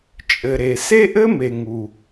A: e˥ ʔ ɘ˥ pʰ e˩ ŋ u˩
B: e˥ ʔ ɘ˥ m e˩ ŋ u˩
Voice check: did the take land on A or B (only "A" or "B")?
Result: B